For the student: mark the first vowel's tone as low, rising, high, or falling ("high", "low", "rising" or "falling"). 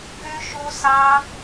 high